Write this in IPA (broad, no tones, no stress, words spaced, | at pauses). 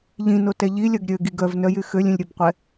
ʎĩnotɛ ʎilʲœɡ ɾʲøɡiɡ œvnœjy xølʲĩlʲɾʲœbqʷɛ